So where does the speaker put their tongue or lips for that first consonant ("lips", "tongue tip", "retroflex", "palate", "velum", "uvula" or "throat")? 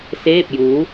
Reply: tongue tip